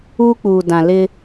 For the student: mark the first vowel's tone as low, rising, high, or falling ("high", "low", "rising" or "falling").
high